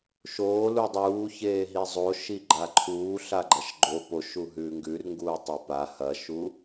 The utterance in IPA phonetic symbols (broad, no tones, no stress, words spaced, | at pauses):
ʃoː ludˤuːçeː ɦizˤo ʃiɡ͡ǃaǃʰuː ɬaɡ͡ǃɐʃɡ͡ǃo poʃu ɦʉːŋɡʉrŋɡuː tˤɵpa hɐʃu